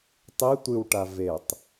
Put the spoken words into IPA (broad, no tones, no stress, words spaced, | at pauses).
tˤi tʷɨwʈa vetˤ